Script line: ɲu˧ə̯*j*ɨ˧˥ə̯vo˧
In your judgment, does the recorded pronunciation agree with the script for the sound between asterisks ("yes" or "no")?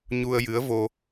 yes